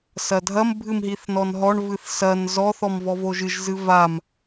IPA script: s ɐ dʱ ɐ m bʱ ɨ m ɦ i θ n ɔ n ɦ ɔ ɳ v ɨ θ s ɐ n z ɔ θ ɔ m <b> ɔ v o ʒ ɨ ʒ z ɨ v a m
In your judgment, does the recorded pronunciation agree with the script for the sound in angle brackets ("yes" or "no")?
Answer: no